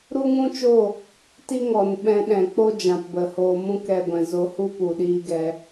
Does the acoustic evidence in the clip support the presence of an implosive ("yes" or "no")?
yes